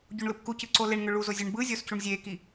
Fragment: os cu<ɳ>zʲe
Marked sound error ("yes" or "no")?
no